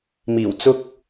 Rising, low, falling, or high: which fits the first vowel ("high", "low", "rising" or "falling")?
low